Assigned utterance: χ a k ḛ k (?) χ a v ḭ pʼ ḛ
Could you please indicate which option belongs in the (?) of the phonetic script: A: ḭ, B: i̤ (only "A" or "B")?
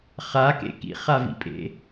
A